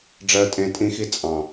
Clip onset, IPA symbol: ɖ͡ʐ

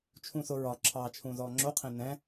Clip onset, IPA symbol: t͡ʃʰ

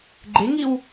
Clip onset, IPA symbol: ɡ͡ǃ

